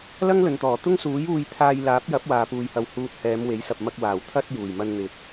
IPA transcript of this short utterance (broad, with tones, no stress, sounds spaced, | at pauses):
l ɐ˥ ŋ l ɵ˨ n t̪ ɔː˨˩ t̪ ʊ˥ ŋ s uː˨˥ j uː˧ j t̪ʰ aː˧ j l aː˨˥ p̚ j ɐ˨˥ p̚ w aː˨ p uː˧ j h ɐ˧ w h uː˨ t̚ h ɛː˨˧ m w e˨˥ j s ɐ˨ p̚ m ɐ˧ k̚ w aː˨˩ w t̪ʰ ɐ˧ t̚ j uː˨˩ j m ɐ˧ n n̪ ɪ˨˥ k̚